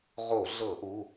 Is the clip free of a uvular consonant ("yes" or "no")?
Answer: no